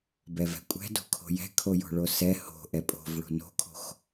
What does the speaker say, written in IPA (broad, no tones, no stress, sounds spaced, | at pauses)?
b ɛ v ɛ̤ kʷʼ ɛ̤ d o̤ kʰ o̤ j ɛ̤ kʰ o j o̤ ɭ o s ɛ h o̤ ʔ ɛ pʼ o̤ v ɭ o̤ n o̤ kʰ o̤ x